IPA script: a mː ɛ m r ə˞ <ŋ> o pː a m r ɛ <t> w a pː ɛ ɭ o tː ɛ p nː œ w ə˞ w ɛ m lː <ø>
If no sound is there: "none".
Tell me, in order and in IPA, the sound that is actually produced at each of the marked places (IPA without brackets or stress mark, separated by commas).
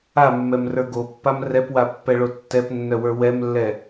ɡ, p, ɛ